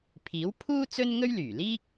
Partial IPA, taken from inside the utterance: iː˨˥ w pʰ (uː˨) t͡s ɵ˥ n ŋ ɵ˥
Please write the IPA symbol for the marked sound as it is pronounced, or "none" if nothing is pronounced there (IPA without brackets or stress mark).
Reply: uː˥